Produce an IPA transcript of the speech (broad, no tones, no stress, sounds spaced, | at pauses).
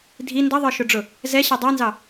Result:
dʱ i n d ʌ ðˤ ə˞ ʃ ʊ ɖ͡ʐ ʊ | z ɛ ɕ ɛ dˤ ɛ n z ɑ